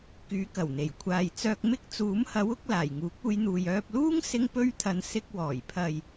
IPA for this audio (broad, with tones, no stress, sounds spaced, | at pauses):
k yː˨˥ k ɐ˨˩ w n̪ e˨˩ j kʷʰ aː˨ j t͡s œː˧ k̚ m ɪ˥ k̚ t͡s uː˨˥ m h ɐ˨˥ w ʊ˨˥ k̚ l aː˨˩ j ŋ uː˨˥ k̚ uː˧ j n̪ uː˨ j œː˧ p̚ l uː˥ ŋ s ɪ˥ ŋ p ɵ˥ ɥ t̪ʰ ɐ˧ n s ɪ˧ k̚ w ɔː˨˩ j pʰ ɐ˨ j